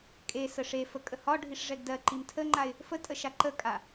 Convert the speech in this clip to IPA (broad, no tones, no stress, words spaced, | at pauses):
kʼe səʂefə kʼəhɒɖʱiʂ ʐɛɡdɜǃim tʰəŋ͡ǃaɪ̯ | fətʼə ʃaǃəkʼa